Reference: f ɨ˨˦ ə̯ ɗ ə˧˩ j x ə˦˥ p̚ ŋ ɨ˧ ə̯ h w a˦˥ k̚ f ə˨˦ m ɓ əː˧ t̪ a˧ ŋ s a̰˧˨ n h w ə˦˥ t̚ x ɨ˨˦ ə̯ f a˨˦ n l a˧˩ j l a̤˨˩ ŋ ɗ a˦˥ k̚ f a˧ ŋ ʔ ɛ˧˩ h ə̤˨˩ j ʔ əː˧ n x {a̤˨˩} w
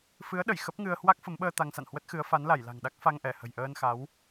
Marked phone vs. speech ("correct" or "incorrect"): incorrect